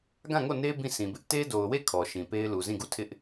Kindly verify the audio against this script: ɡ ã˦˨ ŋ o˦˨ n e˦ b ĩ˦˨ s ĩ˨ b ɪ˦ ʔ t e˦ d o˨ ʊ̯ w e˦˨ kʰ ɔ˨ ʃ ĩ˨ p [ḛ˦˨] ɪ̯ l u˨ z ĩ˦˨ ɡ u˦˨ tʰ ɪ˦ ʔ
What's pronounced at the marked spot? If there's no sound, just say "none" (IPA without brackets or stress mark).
e˦